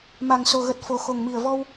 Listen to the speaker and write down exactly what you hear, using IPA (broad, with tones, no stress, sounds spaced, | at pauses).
m a˨˩ ŋ s o˨˩ ɣ ə˨˩ t̚ f o˨˩ x o˨˩ ŋ m i˨˩ ə̯ v ɔ˧ w